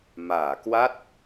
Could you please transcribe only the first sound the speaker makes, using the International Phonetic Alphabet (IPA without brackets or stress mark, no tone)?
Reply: m